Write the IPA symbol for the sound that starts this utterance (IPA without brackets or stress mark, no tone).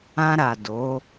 ã